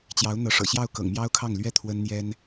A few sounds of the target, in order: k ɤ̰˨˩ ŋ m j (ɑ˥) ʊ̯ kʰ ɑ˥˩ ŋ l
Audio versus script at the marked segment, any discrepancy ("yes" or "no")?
no